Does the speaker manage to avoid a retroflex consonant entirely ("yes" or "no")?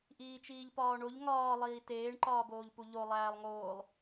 no